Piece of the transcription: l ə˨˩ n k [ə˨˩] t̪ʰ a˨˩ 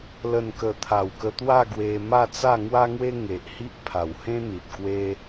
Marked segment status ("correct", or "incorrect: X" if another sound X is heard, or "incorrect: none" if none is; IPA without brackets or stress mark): correct